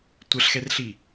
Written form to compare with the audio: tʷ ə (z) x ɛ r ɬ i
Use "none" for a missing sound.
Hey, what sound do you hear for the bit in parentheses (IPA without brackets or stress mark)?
ɬ